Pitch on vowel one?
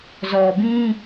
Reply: low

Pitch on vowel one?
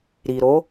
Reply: low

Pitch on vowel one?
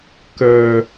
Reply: high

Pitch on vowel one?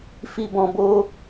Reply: low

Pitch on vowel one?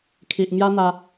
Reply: low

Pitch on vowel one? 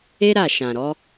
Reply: high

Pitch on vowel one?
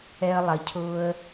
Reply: high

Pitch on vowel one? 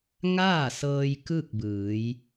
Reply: falling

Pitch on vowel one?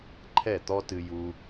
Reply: falling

